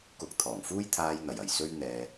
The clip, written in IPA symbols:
k ʊ˧ k̚ t̪ʰ ɔː˨˩ ŋ f uː˥ j t̪ʰ aː˧ j n̪ ɐ˨˩ j ɐ˨˩ j s ɵ˥ ɥ n̪ ɛː˧

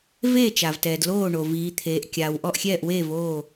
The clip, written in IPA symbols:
v eː˥˩ t͡ʃ a˩ v t ɛː˩ d l oː˥˩ ɳ o˩ v iː˩˧ t̪ʰ eː˩˧ ʔ kʲ aː˩ w ʔ ɔ˥˩ ʔ xʲ ɛː˥˩ ʔ w eː˥˩ v oː˥˩

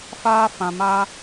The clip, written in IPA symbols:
f aː˦ f ã˧ m aː˦

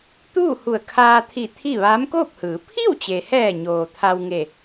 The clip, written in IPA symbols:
t̪ uː˥˨ h u˧˩ ə̯ kʰ aː˧ t̪ʰ i˧˩ t̪ʰ i˥˨ ʋ aː˧˥ m k oː˥˨ p̚ h ɯː˩˧ pʰ i˥˨ w t͡ɕ e˩ h ɛː˧˩ ɲ oː˩ t̪ʰ a˧ w ŋ e˧˩

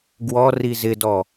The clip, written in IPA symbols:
ɡ w ɔ r i z ɪ d ɔ

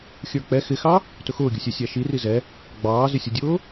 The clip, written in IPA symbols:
xʲ ə˞ k͡p ɛ x ɪ x ɑ | t ʊ x ʊː ɡʲ ʊ sʲ ɛ sʲ æ ʃ i r i z ɛ | ɡ͡b ɑː z ɪ sʲ ʊ dʲ ʊː

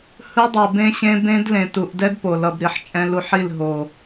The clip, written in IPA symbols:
h ɯ˦ dˤ u˨ b ẽ˧ ɕ ẽ˧ b ẽ˦ d l ẽ˨ t u˨ ʔ d ɛ˦ d p o˨ l ʌ˨ b ɾ i˨ ħ t͡ʃʼ ɛ̃˧ l u˧ ħ i˦˨ l ɦ o˨

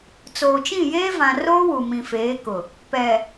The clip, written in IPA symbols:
t͡s oː˨ t͡ʃ ĩ˦˨ j eː˦ v ã˨ r oː˦ w u˨ m ĩ˨ f eː˨˦ k ʊ˨ | p ɛ˨

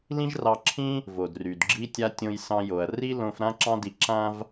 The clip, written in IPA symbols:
l ĩ˥ ʒ r ɑ˧ ǁʰ ĩ˥ | v o˩ d r y˩ d ɡ͡ǁ i˥ tʲ a˥ tʲ õ˧ j s ɑ̃˧ j o˩ ɐ̯ r i˥ l õ˧ f ɾ ã˥ ǁ ɑ̃˥ d i˧ ǁ ã˥ v

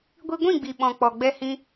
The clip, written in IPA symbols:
ɡʷ i˧ ɡʷ ĩ˦˨ ɡ͡b i˨ ɓ ɔ̃˨ k͡p ɔ˨ ɡ͡b ɛ˧ h ĩ˧

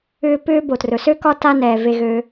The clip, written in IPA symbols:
ʏː˦ p ʏː˥ b o˨ t r ɵ˩ s ø˥ k ɒ˦ t a˦ n ɛː˩ v e˨ ɣ ø˨

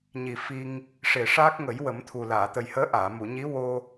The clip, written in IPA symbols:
ɲ i˨˩ f i˧ ŋ | ʂ e˨˩ ʂ aː˦˥ k̚ ŋ ə˨˩˦ j w ə˨˩˦ m t̪ʰ u˨˩ l aː˨˩˨ t̪ ə˨˩ j h əː˧˥ ʔ aː˨˩˨ m u˨˩˨ ɲ i˧˥ w o˧

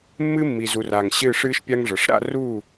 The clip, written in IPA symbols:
mː ɨ˦ mː i˨ z u˨ r a˨ ŋ ɕ ɨː˦˨ ʂ ɨː˦ ʃ pʲ a˦ ŋ ʐ ɤ˨ ʂ ɾ a̰˦˨ r uː˦˨

